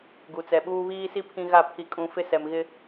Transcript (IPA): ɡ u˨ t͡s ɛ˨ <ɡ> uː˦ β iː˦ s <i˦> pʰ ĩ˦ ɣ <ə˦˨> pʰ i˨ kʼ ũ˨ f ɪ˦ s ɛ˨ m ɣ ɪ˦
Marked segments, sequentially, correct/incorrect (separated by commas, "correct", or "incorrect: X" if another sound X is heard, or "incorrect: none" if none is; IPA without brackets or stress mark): incorrect: ɓ, correct, incorrect: a˦˨